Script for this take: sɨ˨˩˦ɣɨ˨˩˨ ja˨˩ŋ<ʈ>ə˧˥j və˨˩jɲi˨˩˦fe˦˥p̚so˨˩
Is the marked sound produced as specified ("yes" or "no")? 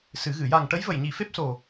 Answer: yes